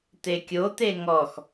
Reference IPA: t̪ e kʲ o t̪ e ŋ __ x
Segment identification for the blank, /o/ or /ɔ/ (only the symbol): ɔ